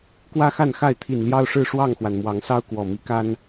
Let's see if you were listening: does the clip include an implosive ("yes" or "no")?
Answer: no